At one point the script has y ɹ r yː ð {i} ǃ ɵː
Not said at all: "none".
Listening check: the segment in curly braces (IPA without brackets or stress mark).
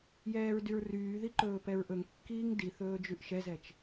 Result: i